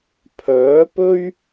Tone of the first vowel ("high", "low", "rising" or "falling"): rising